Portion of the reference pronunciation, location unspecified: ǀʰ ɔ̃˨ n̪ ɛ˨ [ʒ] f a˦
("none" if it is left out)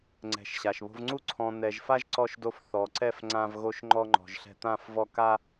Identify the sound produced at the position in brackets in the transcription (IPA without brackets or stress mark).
ʒ